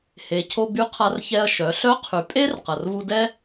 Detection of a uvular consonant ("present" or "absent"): present